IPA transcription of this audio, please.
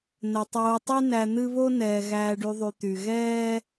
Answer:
n ə˩ tˤ oː˨ tˤ y˦ n æ˨ n̪ ɨ˦ β o˥ n ɛː˩ ɣ æː˨ ɖ y˨ ðˤ y˩ t̪ y˩ ɣ ɛː˥

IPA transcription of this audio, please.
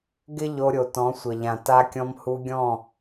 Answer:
ɡ ɪ˦ ʎ o˧ ɾʲ o˨ t ɔ̃˨˦ sʷ ə˨ ʎ ã˨ t a˧ kʲ ɔ̃˧ m h u˧ ɡʲ ɔ̃˦˨

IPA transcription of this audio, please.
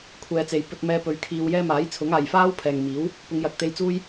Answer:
kʷʰ ɛː˨ t͡s e˨ j p ɵ˧ t̚ m ɛː˧ p ɵ˨˧ ɥ kʰ iː˧ w j ɛː˥ m aː˨˥ j t͡sʰ ʊ˨˥ ŋ aː˨ j f aː˥ w pʰ ɛː˨ ŋ m iː˨˥ w | p ʊ˨˧ ŋ j ɐ˨˥ k̚ t̪ e˧ j t͡s uː˥ j

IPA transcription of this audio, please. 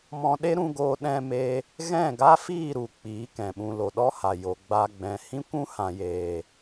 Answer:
m ɔ̃˧ ɗ e˦ ɾ ũ˧ ɡ oː˧ ɗ ɛ̃˧ m e˧ | ɣ ɛ̃˦˨ ɡ a˦ f iː˦˨ ɾ u˨ k͡p iː˨˦ k ɛ̃˨ ɓ ũ˧ l o˨ ɗ ɔ˦ h a˨ j o˨ ɡ͡b a˧ ɡ͡b ɛ̃˨ h ĩ˦ kʷ ũ˦ h ã˨ j eː˨

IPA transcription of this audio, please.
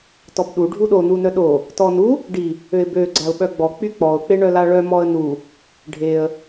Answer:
t ɔ b ɗ u ɖʱ u ɗ o n u n œ ɗ o | t ɔ n u | ɖ i | ø ɪ̯ b ø ɡ͡ǀ a ʊ̯ ɓ œ ɡ͡b ɔ k͡p y k͡p ɔ ʊ̯ k͡p e ɳ œ l a ɭ œ m ɔ ə̯ n u | ɖʱ e ə̯

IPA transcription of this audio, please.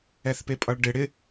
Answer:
ɛ θ p e pʼ ʌ ɭ ɖ ɪ ɽ ɪ

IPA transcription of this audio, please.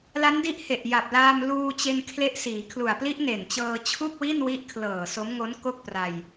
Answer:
l a˦˥ n d i˦˥ ʔ h e˨˩ ʔ j a˨˩ p̚ l aː˧ m l uː˧ t͡ɕ e˧ n kʰ l e˦˥ ʔ s iː˩˦ kʰ l u˨˩ a̯ p l i˦˥ ʔ n e˨˩ n t͡ɕ ɤː˧ t͡ɕʰ u˥˩ k̚ w i˥˩ n w i˦˥ ʔ kʰ l ɤː˨˩ s o˦˥ m ŋ o˦˥ n k o˥˩ k̚ p r a˧ j

